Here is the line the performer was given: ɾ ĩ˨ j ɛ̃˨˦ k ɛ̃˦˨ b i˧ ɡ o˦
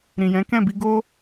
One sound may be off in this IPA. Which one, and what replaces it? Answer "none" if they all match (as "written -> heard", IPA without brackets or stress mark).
none